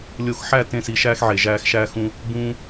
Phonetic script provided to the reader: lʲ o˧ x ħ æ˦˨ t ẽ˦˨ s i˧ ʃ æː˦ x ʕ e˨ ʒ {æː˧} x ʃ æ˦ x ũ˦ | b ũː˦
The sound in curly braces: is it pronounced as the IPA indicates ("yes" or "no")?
yes